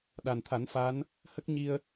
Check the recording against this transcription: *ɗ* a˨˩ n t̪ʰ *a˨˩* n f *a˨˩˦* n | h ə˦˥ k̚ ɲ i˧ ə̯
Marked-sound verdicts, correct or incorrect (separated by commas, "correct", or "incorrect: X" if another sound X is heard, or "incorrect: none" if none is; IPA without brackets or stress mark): correct, incorrect: a˨˩˦, incorrect: a˧˥